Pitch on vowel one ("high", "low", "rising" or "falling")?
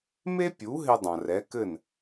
high